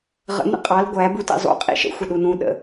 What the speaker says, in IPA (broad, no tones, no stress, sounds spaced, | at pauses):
ʁ ə̰ n̪ ə̰ qʼ ɑ l ɡʷ æ b u t ḭ zˤ ṵ qʼ ḭ ʃ ə̰ xʷ ə ɗ u n ũ ɗ ə̰